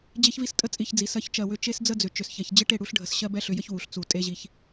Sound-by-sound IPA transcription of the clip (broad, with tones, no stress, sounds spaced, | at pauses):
d͡ʑ e˦ ç v i˦ s tʼ ə˦ t͡sʼ i˧ ç d͡z i˨ s ɜ˧ ç t͡ʃ ɜ˨ w ʏ˧ t͡ʃ e˦ s d͡z ə˦ d͡z ʏ˨ t͡ʃ ʏ˨ s ç ɛ˨ ç d͡ʑ ɪ˦ ʈ e˦˨ ɽ u˦ ɬ ɖʱ ə˧ s ɕ ɜ˦ b ɛ˦ ɬ ʏ˧ j ə˦ ç w u˨ ɬ t͡s u˨ tʼ e˦ ʑ i˧ ç